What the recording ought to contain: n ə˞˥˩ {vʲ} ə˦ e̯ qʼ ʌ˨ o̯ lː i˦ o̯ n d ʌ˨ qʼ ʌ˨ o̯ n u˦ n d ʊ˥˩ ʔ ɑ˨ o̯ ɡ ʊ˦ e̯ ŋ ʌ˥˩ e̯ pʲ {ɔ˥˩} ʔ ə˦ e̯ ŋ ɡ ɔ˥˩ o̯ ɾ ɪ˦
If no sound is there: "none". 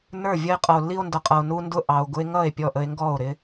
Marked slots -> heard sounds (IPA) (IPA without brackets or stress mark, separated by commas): vʲ, ɔ˥˩